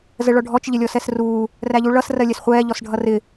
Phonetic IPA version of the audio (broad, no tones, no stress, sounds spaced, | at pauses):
z ə ɭ ɔ ɖʱ ɔ t͡ʃ ʎ ɪ lʲ ɔ s ɛ s r uː | r æ ʎ u ɭ ʌ s r ɜ lʲ ɛ s χʷ ɛː ʎ ɔ s ɖʱ ʌ r ɪ